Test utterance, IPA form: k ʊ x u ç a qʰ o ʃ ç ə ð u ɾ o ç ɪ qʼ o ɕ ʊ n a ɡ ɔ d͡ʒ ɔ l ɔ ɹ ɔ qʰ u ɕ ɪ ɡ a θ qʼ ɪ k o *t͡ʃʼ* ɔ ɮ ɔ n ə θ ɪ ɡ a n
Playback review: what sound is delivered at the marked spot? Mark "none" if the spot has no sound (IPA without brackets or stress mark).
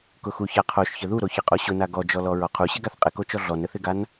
t͡ʃ